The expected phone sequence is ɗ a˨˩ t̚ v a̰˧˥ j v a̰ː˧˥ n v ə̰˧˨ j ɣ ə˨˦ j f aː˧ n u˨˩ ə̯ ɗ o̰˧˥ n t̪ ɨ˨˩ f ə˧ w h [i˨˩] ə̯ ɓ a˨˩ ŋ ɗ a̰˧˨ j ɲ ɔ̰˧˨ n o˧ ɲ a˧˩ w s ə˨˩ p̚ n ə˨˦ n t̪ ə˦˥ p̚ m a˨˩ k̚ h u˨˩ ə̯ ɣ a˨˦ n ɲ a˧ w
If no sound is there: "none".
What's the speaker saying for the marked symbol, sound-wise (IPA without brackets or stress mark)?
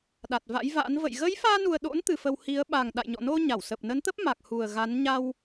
i˨˦